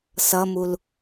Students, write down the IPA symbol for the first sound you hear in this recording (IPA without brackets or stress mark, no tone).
s